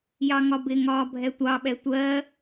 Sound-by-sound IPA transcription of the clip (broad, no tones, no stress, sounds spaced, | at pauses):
j ɑ ŋ ɒ b ɪ ŋ ɒː bʱ ɛ tʷ ɑ ɓ ɛ tʷ ɜ